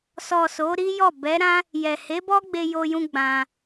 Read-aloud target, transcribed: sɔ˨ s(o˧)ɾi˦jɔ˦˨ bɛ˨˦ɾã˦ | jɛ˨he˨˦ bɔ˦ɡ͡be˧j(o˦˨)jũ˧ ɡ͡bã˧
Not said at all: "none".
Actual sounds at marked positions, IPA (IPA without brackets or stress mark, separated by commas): o˨˦, o˧